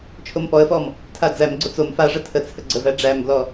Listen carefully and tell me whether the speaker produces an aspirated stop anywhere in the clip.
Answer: yes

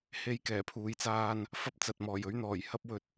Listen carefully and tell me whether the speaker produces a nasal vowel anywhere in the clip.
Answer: no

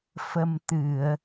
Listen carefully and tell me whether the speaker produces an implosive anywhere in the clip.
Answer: no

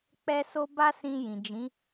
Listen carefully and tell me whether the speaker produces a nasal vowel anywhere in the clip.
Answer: yes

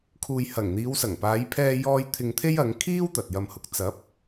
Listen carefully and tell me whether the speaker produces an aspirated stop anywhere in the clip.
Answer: yes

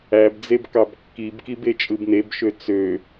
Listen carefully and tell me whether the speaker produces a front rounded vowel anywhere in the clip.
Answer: yes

